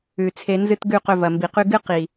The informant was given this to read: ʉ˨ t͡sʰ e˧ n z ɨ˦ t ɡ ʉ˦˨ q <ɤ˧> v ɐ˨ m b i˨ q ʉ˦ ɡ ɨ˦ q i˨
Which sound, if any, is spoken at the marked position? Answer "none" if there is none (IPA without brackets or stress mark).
ɵ˧